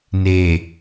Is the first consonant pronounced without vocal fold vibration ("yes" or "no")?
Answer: no